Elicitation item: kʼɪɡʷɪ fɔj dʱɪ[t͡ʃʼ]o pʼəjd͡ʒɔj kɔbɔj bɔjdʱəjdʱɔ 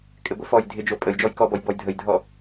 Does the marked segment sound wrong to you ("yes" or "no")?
yes